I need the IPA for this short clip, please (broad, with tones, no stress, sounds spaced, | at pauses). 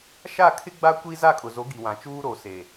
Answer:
ʃ a˦˨ kʰ ɪ˦ ɡ͡b a˦ kʷ i˦ z a˦˨ kʼ ʊ˨ z o˨˦ ɡ i˨ w ã˨ t͡ʃ uː˦ ɾ o˨ s e˨